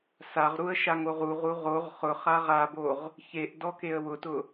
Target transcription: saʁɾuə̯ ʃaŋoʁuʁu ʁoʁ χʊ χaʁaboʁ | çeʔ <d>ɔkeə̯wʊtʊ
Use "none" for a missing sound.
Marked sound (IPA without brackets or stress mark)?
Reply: d